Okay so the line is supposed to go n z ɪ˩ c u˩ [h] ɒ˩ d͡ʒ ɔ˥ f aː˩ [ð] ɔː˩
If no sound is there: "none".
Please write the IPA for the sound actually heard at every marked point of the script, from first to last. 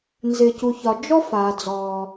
ç, d͡z

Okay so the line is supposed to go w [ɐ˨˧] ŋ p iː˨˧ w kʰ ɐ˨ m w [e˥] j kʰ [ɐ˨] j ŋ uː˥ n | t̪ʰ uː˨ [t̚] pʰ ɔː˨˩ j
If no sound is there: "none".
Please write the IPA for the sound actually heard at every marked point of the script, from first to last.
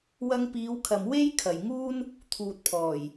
ɐ˧, e˥, ɐ˨, t̚

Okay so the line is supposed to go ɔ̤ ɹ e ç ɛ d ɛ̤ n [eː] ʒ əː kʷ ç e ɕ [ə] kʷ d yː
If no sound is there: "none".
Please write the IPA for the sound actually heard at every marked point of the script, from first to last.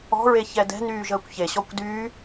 yː, ɔ

